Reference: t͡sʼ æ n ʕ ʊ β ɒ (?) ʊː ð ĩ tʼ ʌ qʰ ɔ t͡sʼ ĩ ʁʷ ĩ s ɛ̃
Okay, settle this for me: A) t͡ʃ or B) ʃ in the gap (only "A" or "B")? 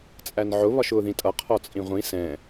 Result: B